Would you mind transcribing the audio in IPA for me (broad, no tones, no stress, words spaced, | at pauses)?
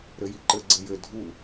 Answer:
ɾɘjiǃɘ ɡ͡ǀɘjɘ dʱu